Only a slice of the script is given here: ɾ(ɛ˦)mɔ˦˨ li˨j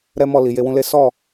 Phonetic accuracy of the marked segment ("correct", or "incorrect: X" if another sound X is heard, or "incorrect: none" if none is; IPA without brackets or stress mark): correct